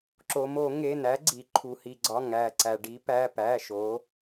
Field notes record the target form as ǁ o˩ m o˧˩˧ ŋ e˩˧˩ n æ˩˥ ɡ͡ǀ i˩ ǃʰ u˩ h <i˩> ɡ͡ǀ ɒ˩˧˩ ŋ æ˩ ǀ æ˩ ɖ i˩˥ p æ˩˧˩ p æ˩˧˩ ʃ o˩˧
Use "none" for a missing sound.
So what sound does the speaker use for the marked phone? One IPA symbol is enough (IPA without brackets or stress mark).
i˩